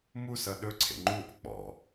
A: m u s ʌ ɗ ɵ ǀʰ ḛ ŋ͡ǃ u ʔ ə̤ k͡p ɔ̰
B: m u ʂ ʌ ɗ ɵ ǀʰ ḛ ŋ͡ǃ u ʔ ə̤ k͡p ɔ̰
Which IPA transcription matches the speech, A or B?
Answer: A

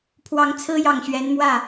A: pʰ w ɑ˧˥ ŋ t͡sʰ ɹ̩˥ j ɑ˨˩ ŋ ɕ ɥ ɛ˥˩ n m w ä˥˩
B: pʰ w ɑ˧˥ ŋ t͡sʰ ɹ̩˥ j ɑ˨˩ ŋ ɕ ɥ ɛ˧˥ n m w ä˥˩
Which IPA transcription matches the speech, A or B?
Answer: B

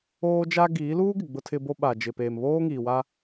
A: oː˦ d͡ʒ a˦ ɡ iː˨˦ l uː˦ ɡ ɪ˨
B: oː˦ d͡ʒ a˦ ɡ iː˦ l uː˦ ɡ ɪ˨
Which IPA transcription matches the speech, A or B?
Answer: A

